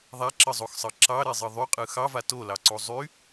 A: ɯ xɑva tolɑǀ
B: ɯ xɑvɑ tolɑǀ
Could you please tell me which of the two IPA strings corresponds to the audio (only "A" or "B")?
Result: A